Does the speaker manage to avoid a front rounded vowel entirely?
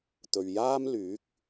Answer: no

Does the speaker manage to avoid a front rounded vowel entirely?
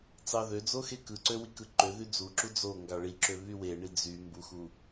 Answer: no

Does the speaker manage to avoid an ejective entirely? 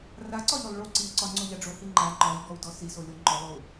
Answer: yes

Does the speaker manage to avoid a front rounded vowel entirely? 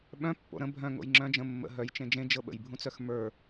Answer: no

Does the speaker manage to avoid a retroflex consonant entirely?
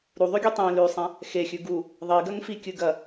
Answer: yes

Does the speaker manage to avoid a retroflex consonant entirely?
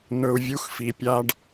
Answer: no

